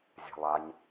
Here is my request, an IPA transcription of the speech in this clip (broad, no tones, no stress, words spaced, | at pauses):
zʲa̤lˠaɲ